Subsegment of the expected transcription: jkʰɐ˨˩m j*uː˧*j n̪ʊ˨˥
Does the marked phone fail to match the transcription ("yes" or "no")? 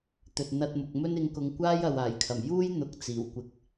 yes